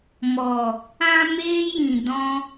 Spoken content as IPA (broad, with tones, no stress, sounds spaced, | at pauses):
m ɔ˨ | ã˧ m eː˦ j ĩ˨ d ɔ̃˧